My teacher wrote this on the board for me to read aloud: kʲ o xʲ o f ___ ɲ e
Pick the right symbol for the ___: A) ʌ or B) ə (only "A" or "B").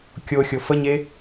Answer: B